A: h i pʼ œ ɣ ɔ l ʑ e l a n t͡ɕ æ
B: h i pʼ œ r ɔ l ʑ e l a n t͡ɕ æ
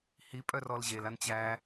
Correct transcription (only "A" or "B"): B